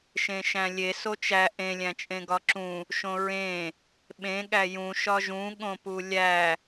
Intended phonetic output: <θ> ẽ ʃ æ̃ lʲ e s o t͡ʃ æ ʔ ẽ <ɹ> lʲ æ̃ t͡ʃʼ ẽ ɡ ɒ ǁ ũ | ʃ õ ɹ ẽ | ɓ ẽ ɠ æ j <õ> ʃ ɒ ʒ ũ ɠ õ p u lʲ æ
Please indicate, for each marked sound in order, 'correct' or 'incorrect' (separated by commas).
incorrect, incorrect, incorrect